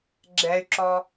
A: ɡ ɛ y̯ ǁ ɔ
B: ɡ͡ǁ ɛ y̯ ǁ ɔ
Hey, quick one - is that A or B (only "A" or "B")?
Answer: B